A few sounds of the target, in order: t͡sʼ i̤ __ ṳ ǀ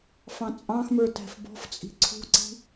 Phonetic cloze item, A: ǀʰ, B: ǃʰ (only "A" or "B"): A